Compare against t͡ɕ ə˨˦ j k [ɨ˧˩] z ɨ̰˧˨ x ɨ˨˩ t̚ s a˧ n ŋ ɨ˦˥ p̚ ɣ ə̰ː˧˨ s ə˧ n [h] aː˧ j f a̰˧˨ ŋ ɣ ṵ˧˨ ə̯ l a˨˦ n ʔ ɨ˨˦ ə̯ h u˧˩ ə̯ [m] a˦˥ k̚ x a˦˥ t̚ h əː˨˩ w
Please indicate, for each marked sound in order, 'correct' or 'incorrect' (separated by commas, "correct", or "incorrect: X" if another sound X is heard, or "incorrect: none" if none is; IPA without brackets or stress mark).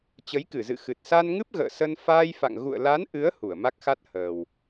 correct, incorrect: f, correct